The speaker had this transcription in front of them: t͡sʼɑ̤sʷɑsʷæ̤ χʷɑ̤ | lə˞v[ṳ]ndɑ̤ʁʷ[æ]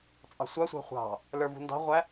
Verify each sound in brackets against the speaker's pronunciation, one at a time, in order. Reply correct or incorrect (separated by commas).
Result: correct, correct